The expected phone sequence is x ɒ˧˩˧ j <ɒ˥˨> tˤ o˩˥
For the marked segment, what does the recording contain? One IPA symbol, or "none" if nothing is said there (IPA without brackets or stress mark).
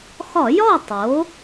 ɒ˥˨